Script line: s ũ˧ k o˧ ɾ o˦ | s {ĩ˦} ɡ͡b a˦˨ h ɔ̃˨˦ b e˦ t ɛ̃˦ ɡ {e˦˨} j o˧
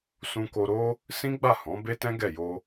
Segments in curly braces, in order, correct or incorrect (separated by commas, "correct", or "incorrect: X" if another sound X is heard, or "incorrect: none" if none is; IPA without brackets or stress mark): correct, incorrect: ɛ˦˨